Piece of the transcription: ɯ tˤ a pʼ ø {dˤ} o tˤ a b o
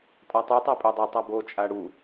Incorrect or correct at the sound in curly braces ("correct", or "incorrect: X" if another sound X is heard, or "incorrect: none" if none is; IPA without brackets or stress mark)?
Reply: correct